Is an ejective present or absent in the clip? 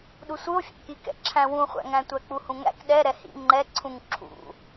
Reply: absent